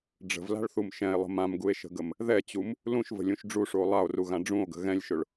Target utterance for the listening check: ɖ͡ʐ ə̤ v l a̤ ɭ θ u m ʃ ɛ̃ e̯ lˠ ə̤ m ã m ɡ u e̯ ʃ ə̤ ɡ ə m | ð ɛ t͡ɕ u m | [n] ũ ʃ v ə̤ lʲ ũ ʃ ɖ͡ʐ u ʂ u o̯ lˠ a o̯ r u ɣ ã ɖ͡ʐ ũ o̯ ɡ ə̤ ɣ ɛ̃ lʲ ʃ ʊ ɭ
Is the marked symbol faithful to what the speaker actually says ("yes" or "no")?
no